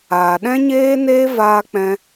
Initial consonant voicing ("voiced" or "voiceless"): voiced